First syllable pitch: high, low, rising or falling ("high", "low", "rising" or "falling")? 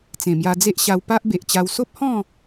low